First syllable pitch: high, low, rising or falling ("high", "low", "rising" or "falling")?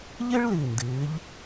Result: high